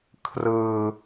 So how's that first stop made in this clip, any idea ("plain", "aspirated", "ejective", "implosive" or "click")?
aspirated